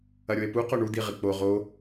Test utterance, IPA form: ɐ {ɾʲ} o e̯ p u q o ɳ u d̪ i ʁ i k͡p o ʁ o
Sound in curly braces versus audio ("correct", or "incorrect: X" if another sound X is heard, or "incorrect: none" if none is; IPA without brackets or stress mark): correct